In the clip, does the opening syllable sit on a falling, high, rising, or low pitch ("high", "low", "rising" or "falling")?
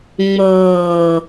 low